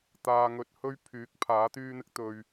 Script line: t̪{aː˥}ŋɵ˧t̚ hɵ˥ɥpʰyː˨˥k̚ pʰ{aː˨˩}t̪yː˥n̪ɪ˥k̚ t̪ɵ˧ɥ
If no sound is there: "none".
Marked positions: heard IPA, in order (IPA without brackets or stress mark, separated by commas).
aː˧, aː˨˥